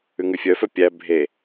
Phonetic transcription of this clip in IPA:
ʉŋʉfʲœfœ pʲæ bʱe

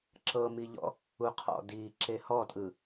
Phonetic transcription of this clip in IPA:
ǁɤmiʎɔ̰ | uqʰɔ̰ diːǁehɔtʼɯ

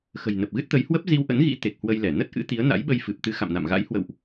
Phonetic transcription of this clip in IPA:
xə̤˨˩jnə˨˩p̚ɣɨ˦˥t̚t̪ə˨˦j hwə˦˥p̚zi˧wʔə̰˧˥nɣḭ˧˥ t̪e˨˩k̚hwə˧j lɛ˧˩ nə˦˥t̚ʔɨ̰˧˥t̪i˨˦ə̯ na̰˧˥jɓə˧jfɨ˨˩p̚t̪ɨ˨˦ xa̰˧˨mna̰˧˨mɣa̰˧˥j hwə̰˧˨wʔ

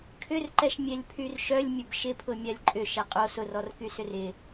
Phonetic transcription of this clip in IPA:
kʰʏrǃɛʃ mʲɛlʲpʰyrʃœlʲmʲʊb ʃɪpʰʊ mʲalʲǃʼʏ ʃɛqʼo sʊrɔrkysʏr ɪ

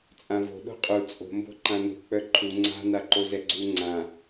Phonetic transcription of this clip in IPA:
t͡sʼãvo̤ ɗo̤qʼu t͡sʼo̤ mbo̤ǃãnṳ k͡pœǃʰu ŋ͡ǀa̤ naǃozɛɡ͡ǀu ŋ͡ǀã

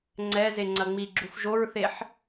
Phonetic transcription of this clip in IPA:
ŋ͡ǀɛ zeŋ͡ǀɐŋ͡miɡ͡ǁuf ʒoɹθeħ

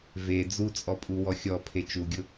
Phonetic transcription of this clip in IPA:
ve d͡zut͡sʼɔpʼu wɔxʲɔ pʰet͡ʃuɡʲʊ

